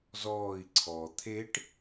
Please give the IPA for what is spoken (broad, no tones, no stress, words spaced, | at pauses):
zɔːi̯ ǀʰɔ t̪ʰeʈ